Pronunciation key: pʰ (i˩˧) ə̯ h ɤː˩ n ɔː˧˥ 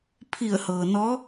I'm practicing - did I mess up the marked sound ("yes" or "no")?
yes